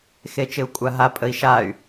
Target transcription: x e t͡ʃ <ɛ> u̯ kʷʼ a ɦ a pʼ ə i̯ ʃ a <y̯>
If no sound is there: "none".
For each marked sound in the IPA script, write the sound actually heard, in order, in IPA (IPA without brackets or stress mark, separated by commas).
ɪ, y̯